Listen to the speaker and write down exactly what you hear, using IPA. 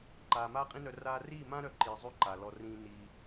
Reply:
ǃ aː˨ m aː˦ qʼ ĩ˦ n œ˧ r aː˧ r iː˦˨ m ã˦ ɾ œ˧ ǃ iː˨ zˤ ø˦ ǃ a˨ l ɔ˧ r ĩː˧ n iː˧

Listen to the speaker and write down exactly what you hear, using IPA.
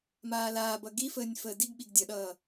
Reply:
m aː l aː b ʌ ɡ i f əː nʲ f əː d i ɡ ɓ i ɡ dʲ ʌ ɗ ʌː

